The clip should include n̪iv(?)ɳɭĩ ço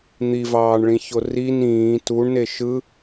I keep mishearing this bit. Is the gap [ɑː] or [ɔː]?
ɑː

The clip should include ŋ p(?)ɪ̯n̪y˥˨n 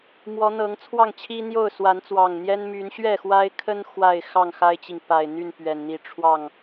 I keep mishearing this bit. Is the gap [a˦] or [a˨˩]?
a˨˩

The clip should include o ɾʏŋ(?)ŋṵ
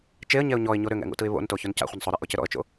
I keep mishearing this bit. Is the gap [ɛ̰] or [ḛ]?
ɛ̰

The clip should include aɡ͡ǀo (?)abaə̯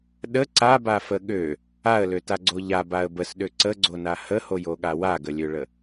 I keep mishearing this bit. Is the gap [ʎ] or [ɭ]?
ʎ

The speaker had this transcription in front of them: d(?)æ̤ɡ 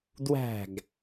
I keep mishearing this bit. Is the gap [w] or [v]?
w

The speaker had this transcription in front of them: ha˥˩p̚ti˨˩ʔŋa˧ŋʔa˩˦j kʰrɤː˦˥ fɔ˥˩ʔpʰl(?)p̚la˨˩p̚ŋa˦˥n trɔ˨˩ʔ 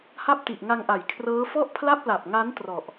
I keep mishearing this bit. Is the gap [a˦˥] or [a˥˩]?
a˥˩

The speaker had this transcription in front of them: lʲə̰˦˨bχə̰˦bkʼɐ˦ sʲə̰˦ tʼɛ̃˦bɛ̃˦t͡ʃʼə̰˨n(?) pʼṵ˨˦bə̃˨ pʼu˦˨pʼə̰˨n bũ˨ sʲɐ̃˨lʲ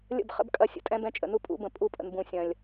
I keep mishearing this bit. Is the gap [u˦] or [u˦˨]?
u˦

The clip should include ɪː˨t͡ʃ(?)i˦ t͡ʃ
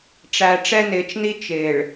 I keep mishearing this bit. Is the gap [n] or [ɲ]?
n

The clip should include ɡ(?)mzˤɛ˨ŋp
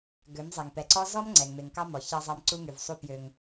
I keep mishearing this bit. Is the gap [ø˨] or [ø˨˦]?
ø˨˦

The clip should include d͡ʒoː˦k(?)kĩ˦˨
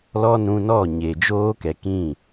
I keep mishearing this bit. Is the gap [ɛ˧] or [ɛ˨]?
ɛ˨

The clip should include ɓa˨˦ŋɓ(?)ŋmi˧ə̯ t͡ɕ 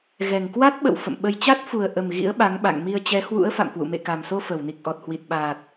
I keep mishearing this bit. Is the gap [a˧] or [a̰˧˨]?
a̰˧˨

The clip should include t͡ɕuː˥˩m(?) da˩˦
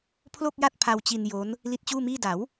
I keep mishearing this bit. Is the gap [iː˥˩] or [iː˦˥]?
iː˥˩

